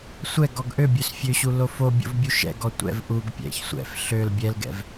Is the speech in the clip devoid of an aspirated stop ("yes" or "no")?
yes